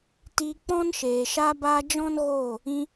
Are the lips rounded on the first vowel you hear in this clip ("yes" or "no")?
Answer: no